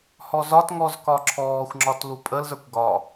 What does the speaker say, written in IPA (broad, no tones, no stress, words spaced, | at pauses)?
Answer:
hɔzɒtŋɔz kɒǁʰɔːxʷŋ͡ǁɒt lupʼəlzə˞kʷ ɡɒ